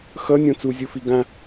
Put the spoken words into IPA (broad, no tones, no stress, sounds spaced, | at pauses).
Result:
x ʌ nʲ õ t͡s u zʲ u f i ɡ ã